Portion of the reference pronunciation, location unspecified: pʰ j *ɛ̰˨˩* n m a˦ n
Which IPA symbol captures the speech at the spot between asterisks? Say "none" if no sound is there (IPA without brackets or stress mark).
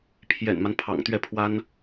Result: ɛ̰˨˩